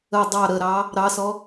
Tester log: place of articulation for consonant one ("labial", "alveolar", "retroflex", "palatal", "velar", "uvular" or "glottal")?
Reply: alveolar